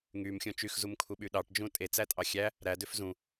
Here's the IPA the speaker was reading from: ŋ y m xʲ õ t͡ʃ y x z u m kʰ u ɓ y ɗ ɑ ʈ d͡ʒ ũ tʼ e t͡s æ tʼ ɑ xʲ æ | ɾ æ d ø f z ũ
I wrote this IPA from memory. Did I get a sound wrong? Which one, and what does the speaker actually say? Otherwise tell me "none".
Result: none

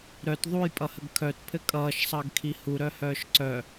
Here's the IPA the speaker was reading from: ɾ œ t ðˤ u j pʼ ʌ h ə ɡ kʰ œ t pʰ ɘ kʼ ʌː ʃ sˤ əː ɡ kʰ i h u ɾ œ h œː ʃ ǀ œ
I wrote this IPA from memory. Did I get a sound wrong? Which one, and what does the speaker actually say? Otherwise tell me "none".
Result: none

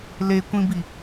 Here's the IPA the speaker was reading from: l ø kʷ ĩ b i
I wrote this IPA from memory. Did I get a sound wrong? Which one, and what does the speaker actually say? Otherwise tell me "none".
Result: ø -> e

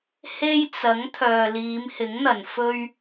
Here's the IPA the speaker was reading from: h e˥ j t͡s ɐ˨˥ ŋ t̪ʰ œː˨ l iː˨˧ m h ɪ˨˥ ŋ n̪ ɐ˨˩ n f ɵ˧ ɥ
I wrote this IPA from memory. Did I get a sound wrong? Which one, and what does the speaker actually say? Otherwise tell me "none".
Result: none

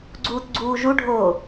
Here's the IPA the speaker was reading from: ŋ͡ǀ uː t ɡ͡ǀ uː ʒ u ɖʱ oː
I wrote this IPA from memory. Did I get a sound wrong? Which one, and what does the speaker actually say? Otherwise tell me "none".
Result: ŋ͡ǀ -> ɡ͡ǀ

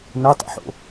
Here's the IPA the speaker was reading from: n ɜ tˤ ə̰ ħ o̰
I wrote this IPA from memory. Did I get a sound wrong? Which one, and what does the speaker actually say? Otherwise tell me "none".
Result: none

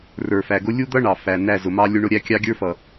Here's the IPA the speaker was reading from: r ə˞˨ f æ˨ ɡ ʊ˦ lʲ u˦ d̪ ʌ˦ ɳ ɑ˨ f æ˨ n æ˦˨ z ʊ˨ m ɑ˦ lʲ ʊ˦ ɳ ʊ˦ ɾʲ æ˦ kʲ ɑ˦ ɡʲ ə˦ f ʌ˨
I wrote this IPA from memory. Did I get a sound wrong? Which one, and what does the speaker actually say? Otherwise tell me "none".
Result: ə˦ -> ə˞˦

